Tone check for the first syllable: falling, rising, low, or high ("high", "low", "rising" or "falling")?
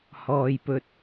low